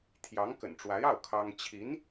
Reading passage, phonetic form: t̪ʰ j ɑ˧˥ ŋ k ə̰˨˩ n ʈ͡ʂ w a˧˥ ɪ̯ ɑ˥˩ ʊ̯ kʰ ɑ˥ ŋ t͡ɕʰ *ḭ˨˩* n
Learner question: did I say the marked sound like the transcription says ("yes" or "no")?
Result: no